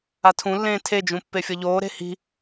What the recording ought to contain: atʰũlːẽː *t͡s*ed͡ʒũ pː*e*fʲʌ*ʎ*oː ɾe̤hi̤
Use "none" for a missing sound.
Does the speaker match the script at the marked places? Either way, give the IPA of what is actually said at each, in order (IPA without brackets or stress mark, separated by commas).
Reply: tʰ, e, ʎ